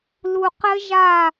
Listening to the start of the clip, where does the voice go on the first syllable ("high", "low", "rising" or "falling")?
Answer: low